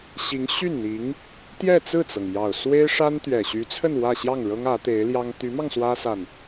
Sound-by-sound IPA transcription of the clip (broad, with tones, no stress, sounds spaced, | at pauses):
ɕ i˧˥ ŋ ɕ y˥˩ n n̪ i˧˥ ŋ | t̪ j ɛ˥˧ t͡s ɹ̩˥˩ t͡s ɤ˩ ŋ j ɑ˨˩ ʊ̯ s w e˥ ɪ̯ ʂ a˥ n t̪ ɥ ɛ˨˩ ɕ y˧˥ t͡sʰ ə˥˧ n w ä˥˧ ɕ j ɑ˥˩ ŋ ɻ ɤ˥ ŋ ä˧˥ t̪ e˧˥ ɪ̯ l j ɑ˥ ŋ t̪ y˧˥ m ɑ˧ ŋ s w ä˥ s a˨ n